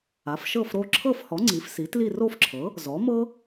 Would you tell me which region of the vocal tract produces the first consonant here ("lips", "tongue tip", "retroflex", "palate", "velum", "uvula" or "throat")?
lips